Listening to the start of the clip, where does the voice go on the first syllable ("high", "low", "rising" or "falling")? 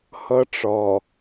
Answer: high